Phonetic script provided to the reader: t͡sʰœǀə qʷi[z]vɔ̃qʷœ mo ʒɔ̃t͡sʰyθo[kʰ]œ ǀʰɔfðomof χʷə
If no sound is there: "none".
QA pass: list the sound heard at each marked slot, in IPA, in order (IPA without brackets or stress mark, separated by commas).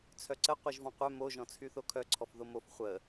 ʒ, kʰ